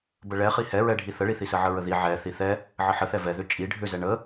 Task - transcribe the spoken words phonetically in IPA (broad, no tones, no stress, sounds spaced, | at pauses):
b ə ɭ ɛ χ i h ɛ ɹ ɛ ɖʱ i θ ə ɭ i θ i s ə ʕ ə ɹ ə ð i ʕ ɛ θ i θ ɛ | ʕ ə ħ ə θ ɛ v ɛ ð ʏ t͡ʃʼ i ɖʱ ʏ z ɛ ɳ ə